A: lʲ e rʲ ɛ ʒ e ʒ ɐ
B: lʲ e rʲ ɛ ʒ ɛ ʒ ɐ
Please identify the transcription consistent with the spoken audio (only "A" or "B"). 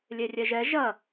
B